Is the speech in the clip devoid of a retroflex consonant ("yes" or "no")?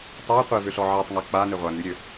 yes